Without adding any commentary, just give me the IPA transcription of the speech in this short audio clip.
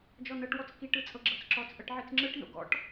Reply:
d͡ʒ ɔ n ɤ ʈ w ɔ t͡s k i ʈ ɯ t͡sʼ ɤ ɡ͡ǁ ɤ t͡s ǁ ɔ t͡s ʔ ɤ ʈ ʕ i t͡s ŋ͡ǁ ɯ ʈ n o̰ ɡ ɔ̰ ʈ

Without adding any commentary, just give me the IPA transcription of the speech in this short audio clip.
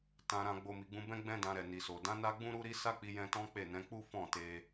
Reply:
t ã˧ ɾ ã˧ ɡ͡b o˧ m i˨ ɡ͡b ũ˧ b ɛ̃˦ ɡ͡b ɛ̃˦ d ã˧ ɾ ɛ˨ n i˨ s o˨ d ã˨˦ n a˦ ɡ͡b ũ˦ ɾ u˦ ɾ i˦ s a˦ k͡p i˧ j ɛ̃˧ t ɔ̃˦ k͡p e˦˨ n ɛ̃˨˦ k͡p u˦ f ɔ̃˦˨ t e˧

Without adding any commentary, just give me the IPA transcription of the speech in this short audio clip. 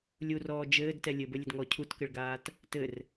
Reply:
lʲ u r ɔː d͡ʒ ɘː d t ɛ lʲ ɘ b ɘ lʲ ɘ d ŋ ɔ cʰ u t k ɘ ɭ ɡ aː t | t ɘ r

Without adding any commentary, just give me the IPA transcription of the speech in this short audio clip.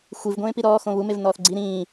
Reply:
xʷ i v ɡʷ ẽː p i ɾ ɔː x õ β u m e v n ɔː θ ɡ͡ǀ i ɾ ĩː

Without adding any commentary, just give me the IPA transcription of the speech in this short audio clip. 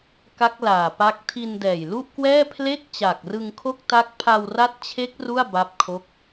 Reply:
k a˦˥ k̚ l aː˨˩ p a˦˥ k̚ tʰ i˧ n d ɛː˨˩ j l u˥˩ ʔ k w ɛː˥˩ pʰ l e˥˩ k̚ t͡ɕ a˨˩ k̚ r ɯ˧ ŋ kʰ o˥˩ k̚ t a˦˥ k̚ pʰ a˧ w r a˦˥ t̚ t͡ɕʰ e˦˥ k̚ r u˥˩ a̯ b a˥˩ p̚ kʰ o˥˩ k̚

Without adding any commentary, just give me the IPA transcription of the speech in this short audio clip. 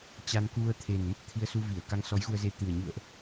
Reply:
t͡ɕ a˧ n k u˧ ə̯ t̪ʰ e˨˩ n m ə˦˥ p̚ t̪ʰ i˧ ə̯ s u˧ v i˧˩ ə̯ k a˧ ŋ s ɔ˨˦ j ɣ u˧ ə̯ z e˧ t̪ ɨ˨˩ ə̯ ɲ ṵ˧˨ ə̯ ʔ

